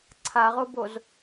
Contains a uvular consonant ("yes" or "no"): yes